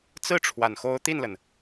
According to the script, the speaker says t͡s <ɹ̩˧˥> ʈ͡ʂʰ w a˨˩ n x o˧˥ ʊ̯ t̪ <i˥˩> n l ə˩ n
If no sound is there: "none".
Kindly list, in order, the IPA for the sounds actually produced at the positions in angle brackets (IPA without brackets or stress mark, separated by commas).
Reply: ɹ̩˥˩, i˥˩